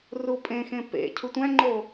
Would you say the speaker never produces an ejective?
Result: no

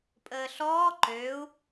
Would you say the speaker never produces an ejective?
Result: no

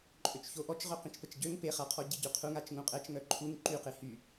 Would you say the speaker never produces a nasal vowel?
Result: no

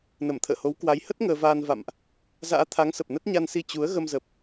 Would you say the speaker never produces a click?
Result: yes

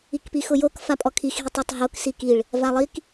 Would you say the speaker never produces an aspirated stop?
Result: no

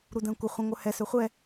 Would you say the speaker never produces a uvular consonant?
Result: no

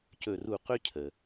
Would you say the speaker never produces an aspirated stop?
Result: no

